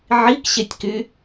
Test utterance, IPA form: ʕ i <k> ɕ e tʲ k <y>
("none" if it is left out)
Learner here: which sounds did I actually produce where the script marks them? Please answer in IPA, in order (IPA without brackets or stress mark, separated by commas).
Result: k, y